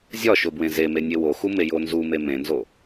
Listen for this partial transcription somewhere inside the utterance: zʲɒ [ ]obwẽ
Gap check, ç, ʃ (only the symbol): ʃ